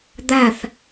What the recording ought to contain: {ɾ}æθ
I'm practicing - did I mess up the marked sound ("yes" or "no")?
yes